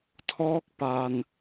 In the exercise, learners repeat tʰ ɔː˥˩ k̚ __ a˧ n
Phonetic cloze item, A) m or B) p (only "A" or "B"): B